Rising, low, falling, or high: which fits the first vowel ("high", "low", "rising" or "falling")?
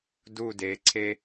falling